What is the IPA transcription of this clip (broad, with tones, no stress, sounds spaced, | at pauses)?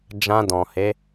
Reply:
d͡ʒ ã˧ d ɔ̃˨ h e˨˦